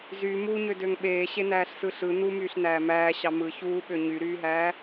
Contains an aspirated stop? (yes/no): no